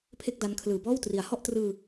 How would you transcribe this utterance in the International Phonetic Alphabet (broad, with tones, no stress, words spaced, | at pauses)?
pʰe˥˩k̚da˦˥n kʰlɯː˩˦bɔː˥˩w tri˩˦a̯hɔ˥˩ʔtrɯː˧